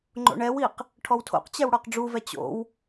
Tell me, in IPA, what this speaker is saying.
ŋ͡ǃ o̰ ɳ ɛ w i q | ʈʰ ɔ w tʰ o̰ q t͡ɕ ɛ w ɽ ɔ q ɖ͡ʐ u v ɛ t͡ɕ o̰ w

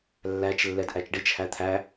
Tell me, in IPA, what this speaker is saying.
lː æ t͡ʃ lː ɛ d ʔ æ t͡ʃ ɖ i t͡ʃ h æ t̪ʰ æ

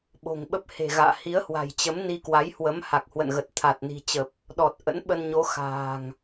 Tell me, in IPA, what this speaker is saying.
ɓ o̤˨˩ ŋ ɓ ə˦˥ p̚ h e̤˨˩ ɣ a̰ː˧˨ h i˨˦ ə̯ h w a̤˨˩ j t͡ɕ ə˨˦ m n i˧ k w a˨˦ j h w ə˨˦ m h a˨˩ k̚ h w ə̰˧˨ n ɣ ə˨˩ t̚ t̪ʰ a˨˩ t̚ n i̤˨˩ t͡ɕ ə˨˩ p̚ | ɗ ɔ˨˩ t̚ ʔ ə̰˧˥ n ɓ ə˧ n ɲ o˨˦ x a̤ː˨˩ ŋ

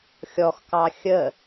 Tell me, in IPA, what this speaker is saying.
xʲ ɔ x k ɑ xʲ ə

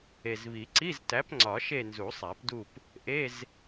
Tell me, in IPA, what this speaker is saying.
e˨˩ z β i˨˩˦ ǀ i˧˥˧ z t æ˨˥ p ŋ͡ǀ ɒ˨˩˦ ʃ e˦˨ n z u˨˩˦ sˤ æ˨˩˦ p d u˦˨ p | ʔ e˧˥˧ z

